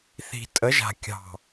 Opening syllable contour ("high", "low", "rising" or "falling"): low